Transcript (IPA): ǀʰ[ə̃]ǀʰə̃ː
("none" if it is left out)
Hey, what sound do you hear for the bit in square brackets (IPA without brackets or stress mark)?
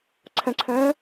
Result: ə̃